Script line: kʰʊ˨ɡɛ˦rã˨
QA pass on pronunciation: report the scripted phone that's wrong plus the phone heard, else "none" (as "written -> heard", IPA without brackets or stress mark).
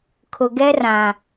none